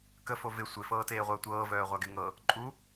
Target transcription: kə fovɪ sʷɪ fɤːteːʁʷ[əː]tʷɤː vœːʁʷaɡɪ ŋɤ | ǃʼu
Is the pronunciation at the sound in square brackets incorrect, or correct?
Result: correct